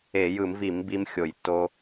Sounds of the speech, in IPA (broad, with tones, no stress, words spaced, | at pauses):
e˧˩˧jɯ˧˩˧mvi˧˩˧m bi˦mxʲo˧˩˧jtːo˦